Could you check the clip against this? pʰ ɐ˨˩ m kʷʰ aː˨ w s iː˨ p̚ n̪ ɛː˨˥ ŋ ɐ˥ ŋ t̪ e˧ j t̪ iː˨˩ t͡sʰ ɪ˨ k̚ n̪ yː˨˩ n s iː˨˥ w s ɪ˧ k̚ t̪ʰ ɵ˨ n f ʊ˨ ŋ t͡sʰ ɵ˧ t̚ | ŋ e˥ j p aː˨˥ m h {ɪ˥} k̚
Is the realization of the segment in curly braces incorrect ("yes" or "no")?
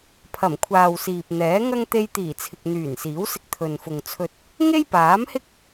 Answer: no